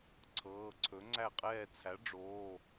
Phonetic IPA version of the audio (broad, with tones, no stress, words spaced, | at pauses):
ǀʰɤː˩˧˩ǀʰɵ˩˥ŋ͡ǀæ˥˨qʼɛː˥˨ t͡sʰæ˩˥ɖ͡ʐoː˩˧˩